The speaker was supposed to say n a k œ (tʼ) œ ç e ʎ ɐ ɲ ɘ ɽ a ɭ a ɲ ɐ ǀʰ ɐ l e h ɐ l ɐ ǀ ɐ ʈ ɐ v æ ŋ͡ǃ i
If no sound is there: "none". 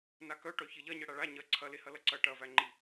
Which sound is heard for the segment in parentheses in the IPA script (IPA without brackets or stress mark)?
ʈ